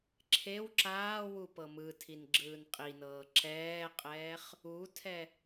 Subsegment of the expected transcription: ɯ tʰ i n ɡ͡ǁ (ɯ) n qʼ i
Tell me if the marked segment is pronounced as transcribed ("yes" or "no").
no